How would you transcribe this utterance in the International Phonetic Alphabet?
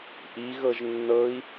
ʔ i ɣ ɤ ʒ nː ɤ i̯

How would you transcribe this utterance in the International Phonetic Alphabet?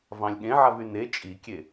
v ɑ̃ lʲ ɠ ẽ ʕ a v y n e t͡ʃʼ i kʲ e

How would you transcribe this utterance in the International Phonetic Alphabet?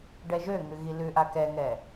ɖ ɛ ʒ ø ŋ ʉ ɣ i l ʉ ʔ a k ɛ ŋ ɛ

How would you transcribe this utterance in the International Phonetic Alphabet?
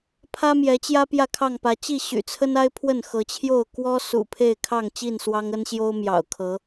pʰ ä˦ m j ɛ˨˦ t͡ɕ j ä˦ p j ä˥˨ kʰ ɑ˥˨ ŋ p ä˨˦ t͡ɕ i˥˨ ɕ y̰˨˩ t͡sʰ ə˦ n a˦ ɪ̯ pʰ w ə˥˨ n x ɤ˨˦ t͡ɕʰ j o˥˨ ʊ̯ k w ɔ˦ s ṵ˨˩ pʰ e˥˨ ɪ̯ kʰ ɑ˥˨ ŋ t͡ɕ i˥˨ n s w ɑ˦ ŋ ə˦ n ɕ j o˦ ʊ̯ m j ɑ̰˨˩ ʊ̯ kʰ ɤ˨˦

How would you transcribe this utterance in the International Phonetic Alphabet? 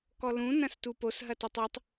k ɔ l ũ n ɐ̃ s t u p o s ɦ ɐ t ɔ tˤ o tˤ

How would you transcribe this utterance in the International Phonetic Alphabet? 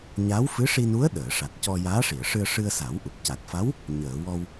ɲ a˧˥ w f ɨ˧˥ ʂ i˧ n u˧˥ ə̯ ɗ əː˨˩˨ ʂ a˨˩ t̚ c ɔ˧ j aː˧˥ ʂ i˨˩˨ ə̯ ʂ ɨ˧ ə̯ ʂ ɨ˧ ə̯ s a˨˩˦ w ʔ u˨˩ p̚ c a˨˩ t̚ f a˧˥ w | ɲ əː˨˩˨ w ɔ˧ w

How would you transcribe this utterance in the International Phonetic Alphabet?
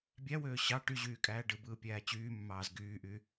bʲ æ w øː ɕ ɑ ʈ y ʑ yː kʼ æː ɖ ɯ b ɯː pʲ æː t͡ɕ yː mː ɑː z ɡ yː ʔ y

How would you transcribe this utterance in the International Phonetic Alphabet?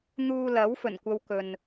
n̪ uː˧ l ɐ˨˥ w f ɵ˨˩ n kʷ ɐ˧ w k ɵ˨ n

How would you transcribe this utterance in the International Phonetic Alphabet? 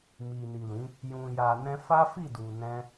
m i˨ n i˨ l ĩ˨˦ | j ũ˨ j a˨ n ɛ̃˧ f a˦ f i˦˨ d u˨ n ɛ̃˧

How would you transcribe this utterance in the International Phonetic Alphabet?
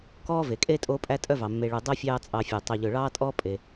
k ɔː˥ v e˩ kʼ eː˥ tʼ oː˦ pʼ æ˦ tʼ œ˦ v ɑ˩ mː e˨ ɭ ʉ˨ dˤ o˥ fʲ ɑː˦ t͡sʼ ɑ˨ fʲ œ˩ tˤ œ˨ ʎ ɵ˨ ɭ ɑː˥ tʼ ɔː˥ pʼ e˨

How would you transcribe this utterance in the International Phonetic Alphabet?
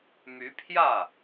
m y˧˥ pʰ j ä˥˩

